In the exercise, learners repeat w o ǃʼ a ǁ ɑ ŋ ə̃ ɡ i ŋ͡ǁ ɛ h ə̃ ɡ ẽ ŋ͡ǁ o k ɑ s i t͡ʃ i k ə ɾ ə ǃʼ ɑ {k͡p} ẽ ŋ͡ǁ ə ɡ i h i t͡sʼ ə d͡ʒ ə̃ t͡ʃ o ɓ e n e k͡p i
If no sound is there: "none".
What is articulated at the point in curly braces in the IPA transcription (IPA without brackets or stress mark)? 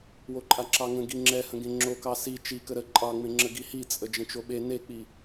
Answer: ŋ͡m